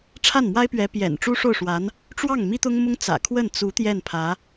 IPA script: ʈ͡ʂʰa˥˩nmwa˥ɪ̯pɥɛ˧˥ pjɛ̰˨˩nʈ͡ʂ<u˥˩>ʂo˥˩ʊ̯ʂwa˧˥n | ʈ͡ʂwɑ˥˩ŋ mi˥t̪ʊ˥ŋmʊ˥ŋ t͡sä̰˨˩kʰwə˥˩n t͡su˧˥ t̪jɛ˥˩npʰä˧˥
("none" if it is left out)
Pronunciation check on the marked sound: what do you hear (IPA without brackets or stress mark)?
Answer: u˥